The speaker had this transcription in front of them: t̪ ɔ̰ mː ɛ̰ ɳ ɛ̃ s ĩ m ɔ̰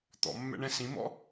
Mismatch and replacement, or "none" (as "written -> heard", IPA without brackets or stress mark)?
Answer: none